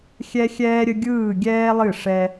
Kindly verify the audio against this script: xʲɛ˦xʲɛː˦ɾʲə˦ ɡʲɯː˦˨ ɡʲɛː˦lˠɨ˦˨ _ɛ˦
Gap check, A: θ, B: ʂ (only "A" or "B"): B